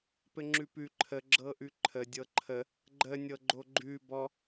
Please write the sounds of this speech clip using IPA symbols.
p ɘ ŋ͡ǁ ʉ p ʉ ǃʰ ə ɡ͡ǁ ɤ ʔ ʉ ǃʰ ə dʲ ɤ ǃʰ ə | ɡ͡ǃ ə nʲ ɤ ɡ͡ǃ o ɡ͡ǃ ʉ b ɔ

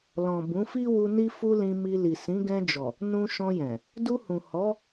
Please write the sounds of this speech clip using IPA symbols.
l ɔ̃˨ b ũ˨˦ f i˦ w u˧ n i˧ f u˧ l ĩ˧ m i˧ l i˨ s ĩ˨˦ ɡ ɛ̃˧ d͡ʒ ɔ˨ | n ũ˧ ʃ ɔ̃˧ j ɛ̃˨ | d u˧ h ũ˨ h ɔ˨˦

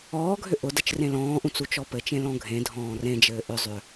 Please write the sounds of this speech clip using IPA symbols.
ɔː ɡʱ ʏ ʔ ʊ d ə t͡ʃ r ẽ l ɔ̃ː ʔ ũ t͡s u t͡ʃ ɔ p ɘ t͡ʃ ẽ l ɔ̃ ɡʱ ẽ dʱ ɔ̃ː r ẽ d͡ʒ ɘː ʔ ʏ zˤ ʏ

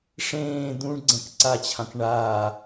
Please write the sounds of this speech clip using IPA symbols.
ʂ ẽː d̪ ũ ɳ ɡ͡ǀ ɛ̃ k ǀ a t͡ɕʰ ã k ɳ aː

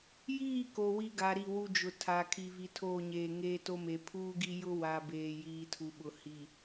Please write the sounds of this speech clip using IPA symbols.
j iː˦˨ k o˨ w i˦ ɡ a˨˦ ɾ i˦˨ w u˦ d͡ʒ ʊ˨ tʰ a˨ kʰ i˨ v i˨ tʰ oː˦˨ ɲ eː˨ ŋ eː˦ t o˦ m e˨ pʰ uː˦ ɡ i˦ j ʊ˦ w a˨ b eː˨ j iː˨ tʰ u˨ ɓ ʊ˨ h i˨

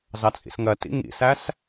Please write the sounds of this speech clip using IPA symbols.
z ɑ t͡sʼ ḭ s ŋ ɜ t ḭ ŋ ḭ s æ s

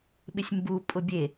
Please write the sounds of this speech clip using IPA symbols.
ɓ ɪ sʲ m b u pʼ ʊ bʲ e

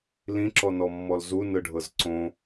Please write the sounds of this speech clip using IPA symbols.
l ĩ ǁ ɔ n ɔ mː ɔ l z u n ɯ ɖʱ ɤ z ǀ õ

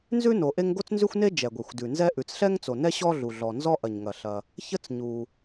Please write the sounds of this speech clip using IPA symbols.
n z ʉ˥ n o˩ ʔ e˥ ŋ ɡ o˥ t͡s n z ʉ˥ xʷ n e˥ d͡ʒ ɛ˩ ɡʷ e˩ xʷ d ʉ˩ n z ɛ˥ ʔ ʉ˩ t͡s ɬ ɛ˥ ŋ t͡s o˩ n ɛ˥ ɕ ɔ˥ ɮ u˩ ɮ ɔ˩ n z ɔ˥ ʔ ɐ˩ ɲ ŋ ɐ˩ ɬ ɐ˩ | ç ə˥ t͡s ɲ u˩

